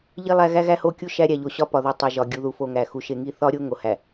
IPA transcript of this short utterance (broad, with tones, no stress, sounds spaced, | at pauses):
ʎ i˦ lˠ æ˦ ɣ æ˦ ɣ æ˦ h o˦˨ kʲ u˦ ʃ æ˦ ɾʲ æ˨ ʎ o˨ ɕ ɒ˦ p ɒ˨ ð u˨ tˤ e˨ ʒ ɒ˨ ɡʲ u˨ ð u˨ f o˨ ŋ æ˨ x u˨ ʃ e˨ ŋ i˦˨ θ ɒ˦ ɾʲ o˦ ŋ o˨ h æ˨